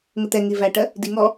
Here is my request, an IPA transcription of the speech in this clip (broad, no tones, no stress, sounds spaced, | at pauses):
ŋ ə t̪ ɛ ŋ i v æ ʈ ɜ | d i ŋ ɔ